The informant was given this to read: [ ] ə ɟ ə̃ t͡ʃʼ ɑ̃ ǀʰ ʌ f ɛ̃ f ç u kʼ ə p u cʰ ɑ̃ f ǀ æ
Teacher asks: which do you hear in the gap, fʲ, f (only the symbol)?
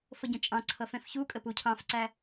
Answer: f